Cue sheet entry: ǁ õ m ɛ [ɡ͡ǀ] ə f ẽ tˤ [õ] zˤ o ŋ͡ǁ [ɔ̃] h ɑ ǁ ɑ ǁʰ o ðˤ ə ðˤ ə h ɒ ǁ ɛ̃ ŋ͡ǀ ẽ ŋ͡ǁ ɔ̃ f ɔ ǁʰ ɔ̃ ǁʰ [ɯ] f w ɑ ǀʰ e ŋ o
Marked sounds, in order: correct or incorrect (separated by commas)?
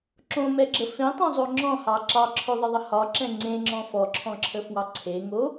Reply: incorrect, correct, correct, incorrect